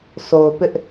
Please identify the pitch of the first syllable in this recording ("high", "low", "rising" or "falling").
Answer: low